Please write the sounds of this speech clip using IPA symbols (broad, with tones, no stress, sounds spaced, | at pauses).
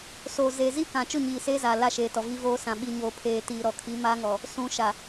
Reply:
s oː˨ z eː˨ z i˦ k ã˨ t͡ʃ ʊ˦˨ ɲ iː˨ s eː˦ z aː˨ l a˦˨ ʃ eː˨ t ɔ˨ v i˦ v oː˦ s ã˨ ɓ i˨ ɲ oː˨ pʰ eː˨ t iː˨ ɾ ɔ˨ kʰ i˨˦ m aː˦ ŋ ɔ˨ | s ũ˨ ʃ a˨